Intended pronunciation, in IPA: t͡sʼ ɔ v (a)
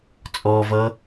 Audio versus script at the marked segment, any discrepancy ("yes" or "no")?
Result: yes